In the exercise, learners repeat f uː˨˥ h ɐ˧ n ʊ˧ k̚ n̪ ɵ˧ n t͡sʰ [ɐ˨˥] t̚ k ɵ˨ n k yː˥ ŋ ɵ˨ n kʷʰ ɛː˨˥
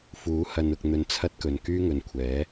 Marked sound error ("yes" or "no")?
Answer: yes